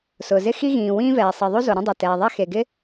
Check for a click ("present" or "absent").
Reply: absent